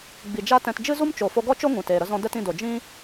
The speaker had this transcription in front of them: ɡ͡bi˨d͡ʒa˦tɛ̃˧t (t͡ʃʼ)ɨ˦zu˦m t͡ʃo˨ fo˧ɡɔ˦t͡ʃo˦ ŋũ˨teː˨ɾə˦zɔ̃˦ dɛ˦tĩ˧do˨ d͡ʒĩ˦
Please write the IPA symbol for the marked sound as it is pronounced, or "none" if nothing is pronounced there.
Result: d͡ʒ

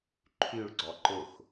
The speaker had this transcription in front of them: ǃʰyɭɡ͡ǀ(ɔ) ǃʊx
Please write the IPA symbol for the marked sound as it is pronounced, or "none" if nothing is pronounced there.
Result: ɔ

